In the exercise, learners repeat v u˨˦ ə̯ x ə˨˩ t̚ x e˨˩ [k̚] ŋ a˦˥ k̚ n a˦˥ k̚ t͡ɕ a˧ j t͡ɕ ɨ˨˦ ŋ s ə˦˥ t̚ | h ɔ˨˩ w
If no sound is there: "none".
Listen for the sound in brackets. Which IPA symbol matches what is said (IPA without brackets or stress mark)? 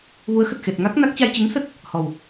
t̚